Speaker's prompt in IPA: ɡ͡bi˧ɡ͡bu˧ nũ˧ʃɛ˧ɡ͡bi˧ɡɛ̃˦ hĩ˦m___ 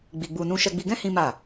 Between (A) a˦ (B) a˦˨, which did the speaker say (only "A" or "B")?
B